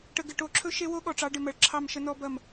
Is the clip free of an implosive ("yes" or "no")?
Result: no